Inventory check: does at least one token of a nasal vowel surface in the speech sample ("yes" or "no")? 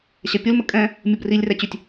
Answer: yes